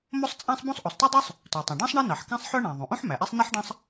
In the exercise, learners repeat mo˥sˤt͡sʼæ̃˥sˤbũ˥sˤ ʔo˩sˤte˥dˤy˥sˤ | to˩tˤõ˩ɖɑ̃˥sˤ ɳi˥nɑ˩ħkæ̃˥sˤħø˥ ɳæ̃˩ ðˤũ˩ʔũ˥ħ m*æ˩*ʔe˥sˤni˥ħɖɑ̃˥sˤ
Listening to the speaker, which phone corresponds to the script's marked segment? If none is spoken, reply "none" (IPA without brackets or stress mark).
æ˩